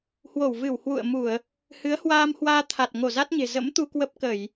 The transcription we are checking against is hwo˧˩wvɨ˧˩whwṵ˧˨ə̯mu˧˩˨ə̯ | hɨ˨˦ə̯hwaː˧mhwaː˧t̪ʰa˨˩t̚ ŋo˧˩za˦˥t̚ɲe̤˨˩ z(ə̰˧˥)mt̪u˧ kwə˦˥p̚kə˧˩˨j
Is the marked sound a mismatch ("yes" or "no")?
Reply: no